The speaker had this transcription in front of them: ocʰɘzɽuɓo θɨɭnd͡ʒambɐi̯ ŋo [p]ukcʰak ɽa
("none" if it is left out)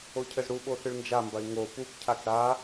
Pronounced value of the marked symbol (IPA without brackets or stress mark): p